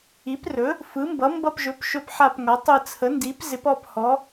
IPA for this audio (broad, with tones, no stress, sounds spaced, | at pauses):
i˩˥ p r ɵ˩˥ | f ɯ˩˥ m b ʌ˩˥ m b ʌ˦˨ p ʒ ɵ˩˥ p ʃ ɵ˦˨ p ħ a˦˨ p ŋ ʌ˩˥ tˤ ɯ˦˨ t͡sʰ ə˩˥ n d i˩˥ p z ɪ˩˥ p ɔ˦˨ p h ɔ˩˥